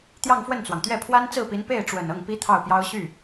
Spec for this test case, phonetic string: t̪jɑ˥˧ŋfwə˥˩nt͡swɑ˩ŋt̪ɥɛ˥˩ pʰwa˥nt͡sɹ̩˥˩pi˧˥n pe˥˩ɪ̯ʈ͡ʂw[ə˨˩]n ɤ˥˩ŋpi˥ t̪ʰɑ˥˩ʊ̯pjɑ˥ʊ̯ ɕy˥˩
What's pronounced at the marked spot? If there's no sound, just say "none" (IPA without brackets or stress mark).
ə˨˩